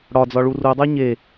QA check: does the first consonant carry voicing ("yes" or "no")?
yes